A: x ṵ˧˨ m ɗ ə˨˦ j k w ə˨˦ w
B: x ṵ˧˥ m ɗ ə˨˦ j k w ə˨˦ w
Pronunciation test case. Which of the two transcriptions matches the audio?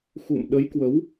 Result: A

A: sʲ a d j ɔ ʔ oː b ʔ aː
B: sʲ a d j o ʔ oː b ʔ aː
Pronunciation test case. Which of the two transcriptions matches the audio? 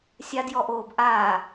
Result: A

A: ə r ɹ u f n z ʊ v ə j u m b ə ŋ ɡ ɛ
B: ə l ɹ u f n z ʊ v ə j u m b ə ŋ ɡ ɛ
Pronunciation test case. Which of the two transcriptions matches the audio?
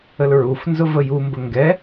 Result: B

